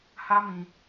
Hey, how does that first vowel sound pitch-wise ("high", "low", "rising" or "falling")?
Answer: high